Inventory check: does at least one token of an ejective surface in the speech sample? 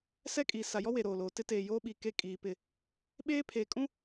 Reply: yes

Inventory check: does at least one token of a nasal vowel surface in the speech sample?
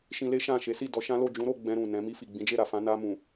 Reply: yes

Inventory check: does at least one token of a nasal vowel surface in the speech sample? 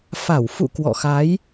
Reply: no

